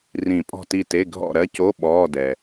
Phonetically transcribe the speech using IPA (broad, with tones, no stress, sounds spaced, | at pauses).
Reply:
r ĩ˨˩˦ pʼ ɔ̤˦˨ t i˦˨ t e˧˥˧ ɡʱ ɔ̰˦˨ ɾ ɜ˥ c o˧˥˧ ɓ ɔː˧˥˧ d ɛ˨